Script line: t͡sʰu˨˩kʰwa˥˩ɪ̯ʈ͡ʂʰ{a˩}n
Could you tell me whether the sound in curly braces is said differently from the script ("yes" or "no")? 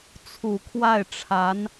yes